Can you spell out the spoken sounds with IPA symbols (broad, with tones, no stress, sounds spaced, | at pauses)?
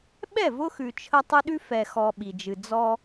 ɓ ɛ˦˨ v ʊ˦ x ʉ˨ t͡ʃʰ ə˦ tˤ ɨ˦ ɗ ʉ˦ f ɛ˨ x ɔ˨ ɓ i˨ d͡ʒ ɨ˨ d͡z ɔ˦